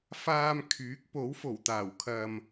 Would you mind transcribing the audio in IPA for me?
f aː˧ m kʰ yː˨˥ k̚ p o˨˥ w f o˨˩ w t̪ aː˨˩ w kʰ ɐ˨ m

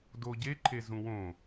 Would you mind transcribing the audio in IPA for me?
d o ɟ e ǃʰ e z ũ w õ

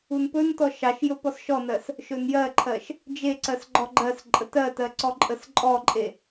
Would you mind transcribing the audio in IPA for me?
u n p ɵ n t ɔ ʃ ɑ ʃ j ɵ p ɔ s ʃ ɔ n ɜ s | ʃ ɵ n j ɜ ǃʰ ɜ ʃ | d͡ʒ e ǀ ɜ s ɡ͡ǃ ɔ ɡ͡ǃ ɜ s ǃʼ ə t ɜ t ɜ ǀ ɔ ǃʼ ə s ǃʼ ɔ ǃʼ e

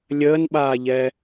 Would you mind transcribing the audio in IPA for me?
lʲ əː n ɓ aː ʎ ɛ

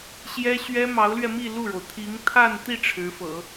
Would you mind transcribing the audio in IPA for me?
ɕ j ɛ˥ ɕ ɥ ɛ˥ m ɑ˧˥ ʊ̯ l ɥ ɛ˧ m i˥˧ l u˥˩ ɻ o˩ ʊ̯ t̪ʰ i˧˥ ŋ t̪ʰ a˥˧ n t̪ i˥˩ ʈ͡ʂʰ ɻ̩˧˥ f ɤ̰˨˩˦

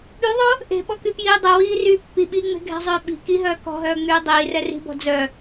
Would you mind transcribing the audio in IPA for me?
ɓ y ðˤ o | ʔ e̤ ɓ ɔ k y p j iː dˤ ɛ w iː r yː pː i ɓ iː ŋ͡m e̤ ɡʱ ɛ̤ zˤ øː ɓ i̤ k i ɦ œː k ɔ̤ ɦ œː ŋ͡m yː dˤ iː r ɛ r i̤ b ɔ̤ d͡z œ

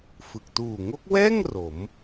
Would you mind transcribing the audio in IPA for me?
f ɯ˨˩ k̚ t uː˨˩ ŋ o˦˥ k̚ w ɛː˥˩ ŋ r o˩˦ m

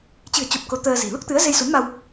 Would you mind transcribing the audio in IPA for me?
t͡ɕ ɨ̤˨˩ ə̯ t͡ɕ o˨˩ p̚ k o˨˦ t̪ əː˧ z i̤˨˩ l u˦˥ k̚ t̪ ɨ˨˦ ə̯ z e˧ j s u˨˦ n m a˧ w

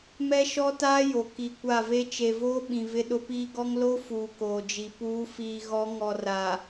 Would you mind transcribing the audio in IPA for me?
m ɛ˦ ʃ ɔ˦ t aː˦ j o˨ k i˨ kʷ a˦˨ v e˦ t͡ʃ e˨ v oː˦ ɓ ĩ˨ v ɪ˦ ɗ ʊ˦ p iː˦ ɡ ɔ˦ ŋ l o˦ f uː˨ k oː˨ d͡ʒ i˨ p uː˨˦ f iː˨ ɣ ɔ˨˦ ŋ ɔ˨ r a˨

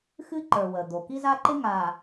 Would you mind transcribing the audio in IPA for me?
x ɨ˦ ǃ ə˞˨ w ə˨ d̪ o˨ k i˦ z a˦ ǃ ɪ˦ ŋ a˨

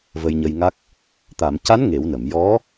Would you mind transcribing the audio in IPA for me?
v ə˧ j ɲ ə˧ j ŋ a˦˥ k̚ | t̪ a˨˩˨ m c a˧˥ n ŋ e˨˩˦ w n ə˨˩˨ m j ɔ˧˥

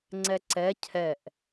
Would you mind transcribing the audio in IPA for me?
ŋ͡ǀ ɛ ǀ ɛ cʰ ɛ ʔ

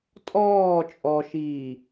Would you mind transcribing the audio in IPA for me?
tʼ ɔː t͡ʃʼ ɔ ʃ iː

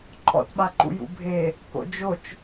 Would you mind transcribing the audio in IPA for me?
ǃʰ ɔ̰ t ɓ a ǃ ṵ j ṵ bʱ e | k o̰ d͡ʒ o t͡ʃ

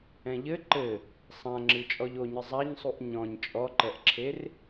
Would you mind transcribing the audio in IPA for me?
ɛ̃ ʎ ɘ ǃ ɘ | sˤ ã ŋ͡ǁ ɨ t͡ʃʼ ɔ ʎ o ɲ ɨ zˤ a ɲ sˤ u ʔ ɲ ɔ̃ ɲ t͡ʃʼ ɔ ǃ ɛ ʔ ǁʰ e r

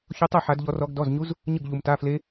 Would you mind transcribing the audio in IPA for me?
ç o˦˥ tˤ ɤ˥˧ ħ a˦˥ d ʎ ɔ˦˥ r ɔ˦˥ ɡ d ɔ˧˥˧ z ɲ u˦˥ z | ɲ ɯ˥˧ ɡ ʎ u˧ m t a˧˥˧ f l e˦˥

